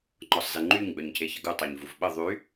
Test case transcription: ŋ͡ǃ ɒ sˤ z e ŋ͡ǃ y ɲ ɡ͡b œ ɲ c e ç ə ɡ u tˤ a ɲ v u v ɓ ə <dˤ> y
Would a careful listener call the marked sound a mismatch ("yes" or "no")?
yes